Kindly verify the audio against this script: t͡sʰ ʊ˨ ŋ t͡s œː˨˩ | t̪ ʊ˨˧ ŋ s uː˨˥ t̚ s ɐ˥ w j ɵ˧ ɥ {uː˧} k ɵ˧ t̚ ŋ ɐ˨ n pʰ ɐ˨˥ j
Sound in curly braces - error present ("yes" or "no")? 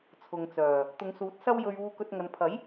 no